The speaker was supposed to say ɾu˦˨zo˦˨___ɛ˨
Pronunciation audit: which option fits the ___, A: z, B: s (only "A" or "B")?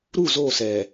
B